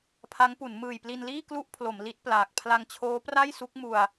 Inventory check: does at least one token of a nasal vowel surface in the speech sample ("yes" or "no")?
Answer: no